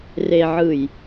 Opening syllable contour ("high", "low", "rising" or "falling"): low